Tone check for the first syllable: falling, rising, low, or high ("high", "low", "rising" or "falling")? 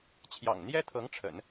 low